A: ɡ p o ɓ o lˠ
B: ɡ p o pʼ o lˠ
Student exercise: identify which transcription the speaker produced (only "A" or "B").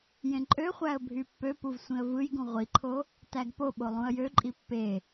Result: A